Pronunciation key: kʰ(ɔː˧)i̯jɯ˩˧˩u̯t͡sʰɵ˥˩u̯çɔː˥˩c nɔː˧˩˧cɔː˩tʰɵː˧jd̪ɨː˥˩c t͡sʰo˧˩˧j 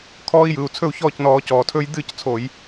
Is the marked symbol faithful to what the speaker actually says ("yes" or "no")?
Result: yes